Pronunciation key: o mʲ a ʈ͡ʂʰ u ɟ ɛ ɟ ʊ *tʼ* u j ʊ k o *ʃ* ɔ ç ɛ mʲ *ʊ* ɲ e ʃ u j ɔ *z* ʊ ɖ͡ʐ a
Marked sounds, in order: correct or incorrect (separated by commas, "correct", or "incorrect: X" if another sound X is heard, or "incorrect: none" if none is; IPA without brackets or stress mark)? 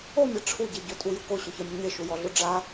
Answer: correct, incorrect: ɕ, correct, incorrect: ɮ